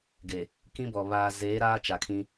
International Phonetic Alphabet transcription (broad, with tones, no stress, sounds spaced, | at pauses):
ɡ e˨ | k ĩ˦ b ɔ˨ β aː˨ z eː˨˦ ɾ aː˦ t͡ʃ a˨ kʰ ĩ˦